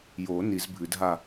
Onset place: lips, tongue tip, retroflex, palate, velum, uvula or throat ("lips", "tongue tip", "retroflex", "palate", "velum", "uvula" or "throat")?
palate